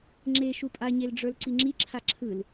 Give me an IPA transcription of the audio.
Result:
ŋ͡ǁe ʃupʼaɲelɖ͡ʐə˞l ǀiŋ͡ǁi ǁʰaǁʰɯl

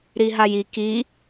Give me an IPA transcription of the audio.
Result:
ɾiɦaji ki

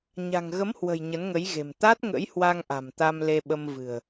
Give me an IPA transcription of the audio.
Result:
ɲa̤˨˩ŋɣə˨˦mhwə̤˨˩j ɲə˨˦nŋə˨˦jɣe̤˨˩m t̪a˦˥t̚ ŋə̰˧˥jhwa˧ŋʔa̤˨˩m t̪a˧mle˧ɓə˧m vɨ̤˨˩ə̯

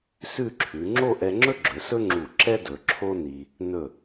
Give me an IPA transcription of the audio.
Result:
sʉ˥˧ǁʰʉ˩˧ ŋ͡ǁo˥˧ʔɛ˧ŋ͡ǁɵ˥ɡ͡ǁɵ˩˧ sɵ˥ŋ͡ǁu˧˩ ǁɛ˥ dɵ˩˧ǁʰo˥ ni˧ | nɵ˧˩

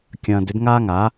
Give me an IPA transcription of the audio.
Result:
kʲɐ̃ː˧d ʏ˥dŋaː˥ŋa˩˥

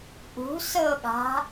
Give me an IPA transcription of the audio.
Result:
ʔṳ sɤɠa̤

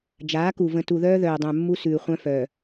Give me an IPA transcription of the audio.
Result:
d͡ʒaː˨˦ku˨ və̃˨tu˨ðœː˦ ðœː˨dˤœ̃˨mːu˦ sʉː˨χʷœ̃˦fœ˨

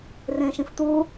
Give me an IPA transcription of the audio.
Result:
rẽːʃĩft̪uː

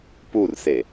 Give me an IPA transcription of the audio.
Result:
purse

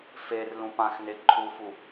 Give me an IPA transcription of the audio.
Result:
fer lũpãxne ǃʰufu

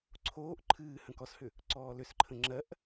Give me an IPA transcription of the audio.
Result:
ǀʰoːʔ ǃʰɨː hə̃kɔshʏ | ǀɔːlʏsǃʰə̃ ŋ͡ǁɜʔ

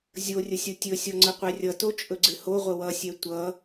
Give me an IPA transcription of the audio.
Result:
zʲorʲəsʲo tʲɵsʲɔŋ͡ǀəqʷɛ rʲʌtot͡ʃʼɵɡ͡ǀɪ hoʁʷə wʌsʲɛ tʷʌ

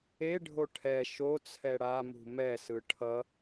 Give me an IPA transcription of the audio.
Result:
e ɖʱoʈʰɛ ʃo t͡sʰɛɽamṳ mɛsɯ ʈʰʌ

